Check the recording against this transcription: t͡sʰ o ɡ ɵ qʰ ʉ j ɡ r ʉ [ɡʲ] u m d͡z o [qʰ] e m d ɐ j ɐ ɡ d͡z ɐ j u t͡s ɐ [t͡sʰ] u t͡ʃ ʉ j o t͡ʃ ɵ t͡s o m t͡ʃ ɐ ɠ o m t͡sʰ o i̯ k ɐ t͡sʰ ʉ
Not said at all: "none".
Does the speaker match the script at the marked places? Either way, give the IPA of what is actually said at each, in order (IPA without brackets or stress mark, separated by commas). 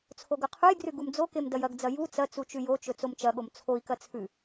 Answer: ɡ, k, t͡s